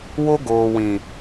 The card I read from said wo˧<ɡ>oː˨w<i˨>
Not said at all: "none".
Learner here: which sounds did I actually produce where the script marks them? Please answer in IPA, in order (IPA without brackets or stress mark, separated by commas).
ɡ, ĩ˨